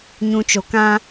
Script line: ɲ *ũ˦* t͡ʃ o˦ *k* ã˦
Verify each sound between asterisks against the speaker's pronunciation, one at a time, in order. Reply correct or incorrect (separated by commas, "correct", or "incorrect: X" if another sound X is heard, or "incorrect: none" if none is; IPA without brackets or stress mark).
correct, correct